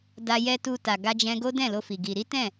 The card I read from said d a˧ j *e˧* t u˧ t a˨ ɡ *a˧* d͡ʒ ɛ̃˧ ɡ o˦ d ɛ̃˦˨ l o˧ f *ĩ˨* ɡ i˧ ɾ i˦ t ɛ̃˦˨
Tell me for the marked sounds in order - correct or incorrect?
incorrect, correct, incorrect

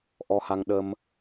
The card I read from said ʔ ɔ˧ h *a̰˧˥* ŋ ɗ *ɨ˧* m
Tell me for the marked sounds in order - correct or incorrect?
incorrect, incorrect

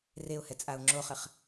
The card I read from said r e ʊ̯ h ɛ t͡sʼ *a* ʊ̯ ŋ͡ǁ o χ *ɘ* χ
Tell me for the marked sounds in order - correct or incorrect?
correct, correct

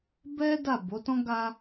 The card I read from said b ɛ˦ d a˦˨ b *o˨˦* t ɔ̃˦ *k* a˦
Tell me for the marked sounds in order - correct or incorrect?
correct, incorrect

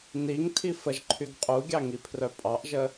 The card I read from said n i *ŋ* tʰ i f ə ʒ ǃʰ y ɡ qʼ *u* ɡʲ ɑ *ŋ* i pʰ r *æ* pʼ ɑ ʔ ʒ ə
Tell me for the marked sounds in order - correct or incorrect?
correct, correct, correct, incorrect

